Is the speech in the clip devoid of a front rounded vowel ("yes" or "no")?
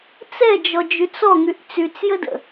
no